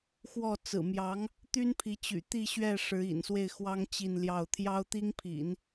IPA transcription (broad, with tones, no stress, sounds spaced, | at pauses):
x w ɔ˥˩ t͡s ɹ̩˨˩ m j ɑ˧˥ ŋ | t̪ y˥ n pʰ i˧˥ t͡ɕ y̰˨˩ t̪ i˥˧ ɕ ɥ ɛ˥˩ ʂ ɻ̩˧˥ ḭ˨˩ n s w e˥˩ ɪ̯ x w ɑ˥ ŋ t͡ɕ i˥˧ n l j ɑ˥˩ ʊ̯ t̪ʰ j ɑ˥ ʊ̯ t̪ i˥ ŋ pʰ ḭ˨˩˦ n